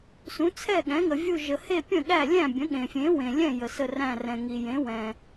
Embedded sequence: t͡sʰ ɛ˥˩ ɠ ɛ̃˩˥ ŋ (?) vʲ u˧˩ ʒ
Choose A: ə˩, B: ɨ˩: A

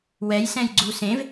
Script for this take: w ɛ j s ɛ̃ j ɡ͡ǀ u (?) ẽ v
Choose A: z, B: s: B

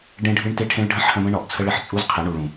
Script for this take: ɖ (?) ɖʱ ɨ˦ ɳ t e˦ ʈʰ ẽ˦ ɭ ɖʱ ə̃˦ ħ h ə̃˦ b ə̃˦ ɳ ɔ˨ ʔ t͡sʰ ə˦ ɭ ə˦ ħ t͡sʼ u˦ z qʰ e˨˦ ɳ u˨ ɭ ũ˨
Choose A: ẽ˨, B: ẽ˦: B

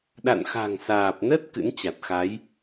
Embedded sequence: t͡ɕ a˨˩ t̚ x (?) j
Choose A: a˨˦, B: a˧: A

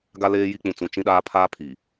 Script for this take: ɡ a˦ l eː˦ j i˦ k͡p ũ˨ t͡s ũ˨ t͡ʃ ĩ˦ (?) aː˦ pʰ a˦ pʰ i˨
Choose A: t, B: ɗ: B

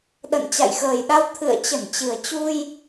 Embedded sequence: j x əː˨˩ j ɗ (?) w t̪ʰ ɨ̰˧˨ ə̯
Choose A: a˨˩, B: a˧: B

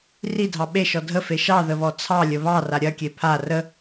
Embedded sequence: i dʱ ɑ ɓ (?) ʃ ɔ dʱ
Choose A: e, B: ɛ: A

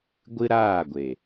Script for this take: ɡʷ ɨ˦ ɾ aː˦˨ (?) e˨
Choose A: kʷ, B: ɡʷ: B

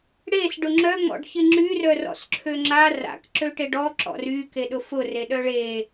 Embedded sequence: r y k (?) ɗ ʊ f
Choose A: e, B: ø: A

